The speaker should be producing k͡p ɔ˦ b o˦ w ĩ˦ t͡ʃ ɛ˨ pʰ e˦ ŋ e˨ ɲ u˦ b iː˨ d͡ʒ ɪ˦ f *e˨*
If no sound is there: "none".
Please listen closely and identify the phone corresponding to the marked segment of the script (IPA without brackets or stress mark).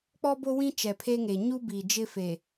e˨